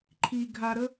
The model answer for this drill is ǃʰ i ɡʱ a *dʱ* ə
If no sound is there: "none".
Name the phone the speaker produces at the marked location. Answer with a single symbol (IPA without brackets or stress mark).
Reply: ɾ